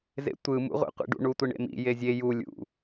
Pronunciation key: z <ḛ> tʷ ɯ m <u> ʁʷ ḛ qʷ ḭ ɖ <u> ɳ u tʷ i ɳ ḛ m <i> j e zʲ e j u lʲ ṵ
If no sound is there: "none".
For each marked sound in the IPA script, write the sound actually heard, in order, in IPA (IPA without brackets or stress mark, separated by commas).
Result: ḛ, ṵ, ṵ, ḭ